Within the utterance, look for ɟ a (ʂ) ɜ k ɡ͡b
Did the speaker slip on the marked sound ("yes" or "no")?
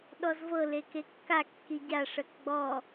no